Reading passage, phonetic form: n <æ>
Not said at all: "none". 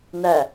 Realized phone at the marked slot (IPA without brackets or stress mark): æ